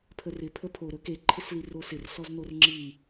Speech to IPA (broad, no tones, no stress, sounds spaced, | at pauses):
pʰ ə r ɪ pʰ ə pʰ o ɾ ɵ k e ǃʰ ɪ s l i r o s ɪ r s ɔ z n o r ŋ͡ǁ i